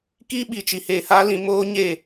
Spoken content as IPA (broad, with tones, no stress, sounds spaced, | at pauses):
k iː˦ ɓ i˨ t͡ʃ i˨ h eː˨ h a˧ l ĩ˨ m oː˦ ɲ eː˦˨